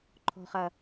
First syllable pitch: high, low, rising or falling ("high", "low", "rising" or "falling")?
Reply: low